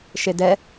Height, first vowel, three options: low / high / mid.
mid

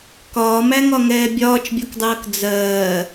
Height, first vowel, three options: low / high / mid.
low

